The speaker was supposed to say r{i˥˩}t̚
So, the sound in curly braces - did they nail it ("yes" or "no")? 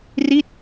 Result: yes